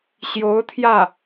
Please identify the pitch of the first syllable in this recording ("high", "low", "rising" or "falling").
rising